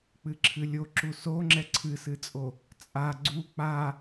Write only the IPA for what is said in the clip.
k͡p ɨ ǁʰ ɨ lʲ o ǁ u s o ŋ͡ǁ ɛ ǀʰ ɨ s ɨ t͡sʼ o | t͡sʼ a ɡ͡ǀ u k͡p a

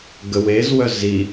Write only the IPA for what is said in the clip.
ɡ ə w e z w œ z i

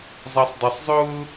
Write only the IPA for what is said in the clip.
zˤ ɑ sˤ dˤ ʊ sˤ zˤ ʊː

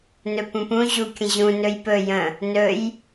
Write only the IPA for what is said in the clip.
n ɵ p ũ p ũ ʑ u kʲ ə̃ ʑ ũ n ɵ j p ɵ j ə̃ | n ɵ j

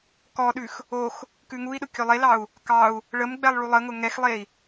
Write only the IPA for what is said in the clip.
k ɔ ɗ ʉ x | o x | k ʉ ŋ u i̯ ɗ ʊ kʲ ɵ lˠ e l ɑ u̯ | k ɑ u̯ | ɭ ə m ɡ͡b ɛ lˠ ɭ u lˠ ə ŋ ʊ ŋ ɛ x lˠ e i̯

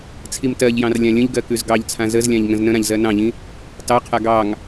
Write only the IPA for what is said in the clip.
t͡sʰ i m t ɜ ʎ j ɑ̃ r lʲ ã lʲ ə̃ ʎ ɡ ɜ k ʉ z ɡ ɑ ʎ t͡sʰ ã z ə z lʲ ã ʎ ŋ ə̃ z n ə̃ ɾ ã ʎ z ɜ n ɑ̃ ʎ ĩ | t ɑ qʰ a ɡ ɑ ŋ

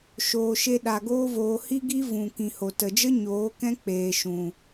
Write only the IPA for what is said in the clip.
ʃ oː˧ ʃ e˦ ɗ a˧ ɡ oː˦ v oː˧ h i˦ ɡ i˦ v ũ˨ k ĩ˨ h o˨ t ə˨ d͡ʒ ə˦ ɲ oː˨˦ k ɛ̃˦ k͡p eː˨ ʃ ũ˨

